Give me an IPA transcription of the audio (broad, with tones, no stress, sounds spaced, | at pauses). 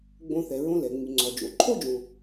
ɡ͡b õ˨ θ ɛ˩ ɹ õ˨ l ɛ˩ ŋ͡m y˩ ŋ͡ǀ ɔ˩ d͡ʒ o̰˩ ǃʰ o˥ d͡ʒ õ˨